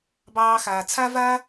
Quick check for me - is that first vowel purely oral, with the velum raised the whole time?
yes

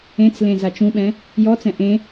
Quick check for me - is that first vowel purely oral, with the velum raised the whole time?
no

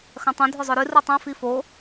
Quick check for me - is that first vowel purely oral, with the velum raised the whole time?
no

